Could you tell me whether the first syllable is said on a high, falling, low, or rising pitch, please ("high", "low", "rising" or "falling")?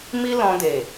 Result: high